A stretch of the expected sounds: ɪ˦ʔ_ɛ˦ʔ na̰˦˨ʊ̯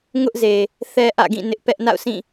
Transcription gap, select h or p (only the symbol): p